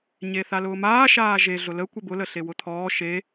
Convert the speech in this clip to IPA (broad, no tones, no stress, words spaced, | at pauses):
ɲeθalʊːmaː ʃaːʒe ɮʊlə kʷebʊlə ɬewʊt̪ʰɔː ʃe